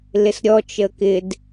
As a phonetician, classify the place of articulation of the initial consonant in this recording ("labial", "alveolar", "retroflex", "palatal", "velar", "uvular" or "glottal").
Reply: alveolar